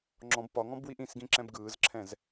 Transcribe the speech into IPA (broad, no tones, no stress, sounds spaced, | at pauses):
ŋ͡ǁ ɔ̃ b p ɒ ŋ ɔ̃ b w i ʔ ĩ s ɡ ĩ ǁ ɛ̃ b ɡ ɯː z ǁʰ ɛ̃ z